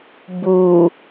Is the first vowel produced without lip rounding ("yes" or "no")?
no